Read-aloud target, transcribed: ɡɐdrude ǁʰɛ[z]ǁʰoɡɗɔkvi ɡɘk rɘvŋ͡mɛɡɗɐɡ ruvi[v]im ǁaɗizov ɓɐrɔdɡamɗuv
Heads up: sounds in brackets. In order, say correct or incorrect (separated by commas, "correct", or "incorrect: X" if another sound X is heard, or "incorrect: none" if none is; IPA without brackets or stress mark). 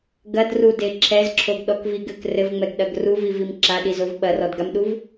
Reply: correct, correct